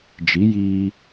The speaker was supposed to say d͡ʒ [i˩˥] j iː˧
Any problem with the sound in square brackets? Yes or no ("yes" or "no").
no